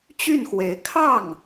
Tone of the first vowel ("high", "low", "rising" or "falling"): falling